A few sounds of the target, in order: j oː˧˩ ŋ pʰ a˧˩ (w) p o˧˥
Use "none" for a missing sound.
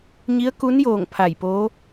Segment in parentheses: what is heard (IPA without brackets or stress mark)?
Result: j